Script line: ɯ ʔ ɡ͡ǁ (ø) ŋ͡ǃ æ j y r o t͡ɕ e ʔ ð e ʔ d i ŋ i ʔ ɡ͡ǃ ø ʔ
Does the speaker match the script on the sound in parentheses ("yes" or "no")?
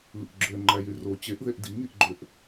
yes